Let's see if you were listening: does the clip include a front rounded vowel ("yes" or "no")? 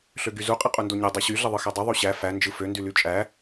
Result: yes